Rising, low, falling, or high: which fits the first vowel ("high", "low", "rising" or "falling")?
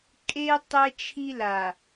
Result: high